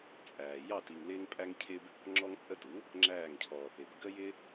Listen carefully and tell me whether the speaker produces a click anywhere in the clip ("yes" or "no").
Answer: yes